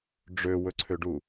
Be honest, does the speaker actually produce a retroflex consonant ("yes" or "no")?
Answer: yes